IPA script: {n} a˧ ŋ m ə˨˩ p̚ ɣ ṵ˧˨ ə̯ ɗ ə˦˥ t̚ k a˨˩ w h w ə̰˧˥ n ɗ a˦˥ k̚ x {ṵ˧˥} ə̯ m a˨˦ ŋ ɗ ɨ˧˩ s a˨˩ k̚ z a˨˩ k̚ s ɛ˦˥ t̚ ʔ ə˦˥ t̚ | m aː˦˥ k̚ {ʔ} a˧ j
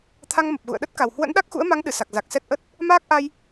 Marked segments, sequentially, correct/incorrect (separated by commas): incorrect, correct, correct